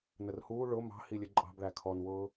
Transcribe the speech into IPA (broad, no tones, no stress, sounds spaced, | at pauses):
n ə r h uː ɭ ʊ m ɑ̤ h i lʲ ə ǃʼ ɑ̤ b ɭ æ kʰ ɔ n w ʊː